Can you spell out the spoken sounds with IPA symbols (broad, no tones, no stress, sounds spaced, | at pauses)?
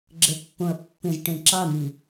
ɡ͡ǁ ə pː õ ɐ̯ pː ẽ z ʈ ẽ ǁ ɑ n̪ i